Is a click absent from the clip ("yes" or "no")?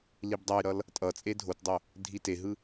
yes